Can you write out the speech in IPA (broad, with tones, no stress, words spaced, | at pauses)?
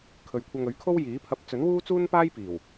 kʰɵ˨ɥkʷʰɐ˧ŋ ɵ˨˥ɥkʰo˥wjiː˨˥pʰɐ˧p̚ t͡sɵ˨˥nwuː˥t͡suː˥npaː˥j piː˨˩w